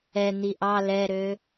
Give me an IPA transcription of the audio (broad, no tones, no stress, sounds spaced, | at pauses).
ɛ n̪ i ʔ ɑ l ɛ ɾ ø